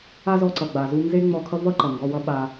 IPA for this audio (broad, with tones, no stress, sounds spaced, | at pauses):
a˦ z ɔ˧ ǀ ʌ˨ ɡ͡b a˨ z u˧ n z e˦ ŋ͡m ɔ˧ kʰ ʌ˦ v ʌ˦ ǃ ʌ˨ ŋ ɡ ɔ˧ w ʌ˦ ɓ a˧